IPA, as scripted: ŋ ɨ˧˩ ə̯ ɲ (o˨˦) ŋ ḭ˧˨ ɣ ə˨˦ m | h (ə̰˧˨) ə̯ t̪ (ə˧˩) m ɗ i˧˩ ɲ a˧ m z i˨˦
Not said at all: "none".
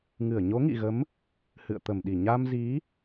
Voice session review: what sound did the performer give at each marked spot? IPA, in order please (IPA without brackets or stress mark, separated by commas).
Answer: o˨˦, ɨ̰˧˨, ə˧˩